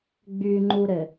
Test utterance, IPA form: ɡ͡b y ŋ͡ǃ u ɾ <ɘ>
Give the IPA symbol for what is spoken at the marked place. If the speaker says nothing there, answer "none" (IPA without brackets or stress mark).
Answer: ɘ